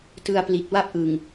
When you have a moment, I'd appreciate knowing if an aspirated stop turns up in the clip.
no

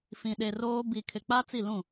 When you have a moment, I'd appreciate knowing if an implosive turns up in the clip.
yes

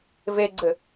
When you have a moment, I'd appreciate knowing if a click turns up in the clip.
yes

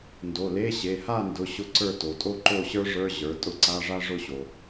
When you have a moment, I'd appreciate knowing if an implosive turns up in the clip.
no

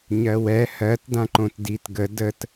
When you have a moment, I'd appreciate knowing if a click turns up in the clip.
yes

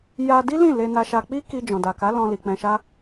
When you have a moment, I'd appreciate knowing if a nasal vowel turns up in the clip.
yes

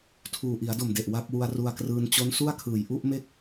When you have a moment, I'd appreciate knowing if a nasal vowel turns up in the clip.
no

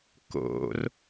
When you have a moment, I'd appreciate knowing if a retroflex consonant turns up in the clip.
no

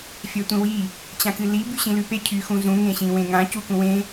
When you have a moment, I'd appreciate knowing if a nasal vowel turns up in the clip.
yes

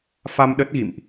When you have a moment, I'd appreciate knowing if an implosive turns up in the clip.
yes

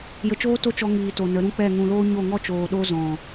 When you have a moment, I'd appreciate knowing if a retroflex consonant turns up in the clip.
no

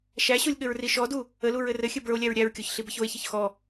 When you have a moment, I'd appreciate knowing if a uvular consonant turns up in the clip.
no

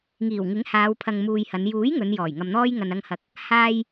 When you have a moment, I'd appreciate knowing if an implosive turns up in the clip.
no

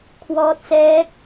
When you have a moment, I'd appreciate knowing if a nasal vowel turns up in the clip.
no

